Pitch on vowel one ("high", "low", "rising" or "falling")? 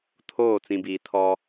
falling